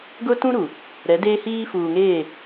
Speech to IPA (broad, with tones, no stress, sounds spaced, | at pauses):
ɡ ʊ˦ t ũ˦ ɾ u˨ | ɾ ɛ˨˦ d eː˦ h iː˦ f uː˨ ŋ eː˦˨